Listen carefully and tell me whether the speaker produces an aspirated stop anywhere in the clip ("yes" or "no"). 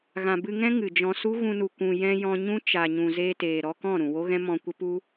no